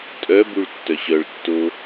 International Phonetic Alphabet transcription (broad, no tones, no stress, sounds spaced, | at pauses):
tʼ œ b u ɭ tː œ ɕ œ ɭ tː o